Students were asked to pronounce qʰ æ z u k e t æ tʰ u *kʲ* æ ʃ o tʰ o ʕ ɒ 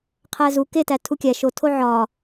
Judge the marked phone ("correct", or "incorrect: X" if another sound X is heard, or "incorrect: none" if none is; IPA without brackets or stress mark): correct